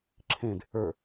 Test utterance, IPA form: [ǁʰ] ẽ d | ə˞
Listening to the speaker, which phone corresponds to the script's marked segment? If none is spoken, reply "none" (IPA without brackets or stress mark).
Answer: ǁʰ